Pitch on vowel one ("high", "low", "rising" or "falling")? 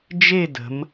falling